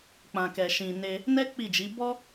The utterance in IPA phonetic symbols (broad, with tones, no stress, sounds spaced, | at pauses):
k͡p ã˨ k ɛ˨ ʃ ĩ˨ n e˧ | n ɛ˦ k͡p i˦˨ d͡ʒ i˨˦ b ɔ˦